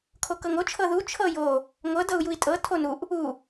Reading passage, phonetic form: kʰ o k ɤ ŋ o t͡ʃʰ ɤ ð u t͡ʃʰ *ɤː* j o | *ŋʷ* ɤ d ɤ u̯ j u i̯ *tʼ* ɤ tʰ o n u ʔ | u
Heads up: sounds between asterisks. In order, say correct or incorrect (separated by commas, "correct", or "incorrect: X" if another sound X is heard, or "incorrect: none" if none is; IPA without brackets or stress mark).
incorrect: ɤ, correct, correct